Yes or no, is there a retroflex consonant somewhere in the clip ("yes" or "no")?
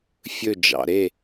no